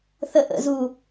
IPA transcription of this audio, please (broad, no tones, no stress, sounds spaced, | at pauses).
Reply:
θ ə ʔ ə̰ z u